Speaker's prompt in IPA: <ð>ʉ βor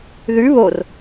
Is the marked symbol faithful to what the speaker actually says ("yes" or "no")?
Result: yes